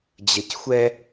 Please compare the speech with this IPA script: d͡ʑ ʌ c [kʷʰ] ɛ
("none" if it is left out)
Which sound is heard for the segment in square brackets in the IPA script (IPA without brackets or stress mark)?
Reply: xʷ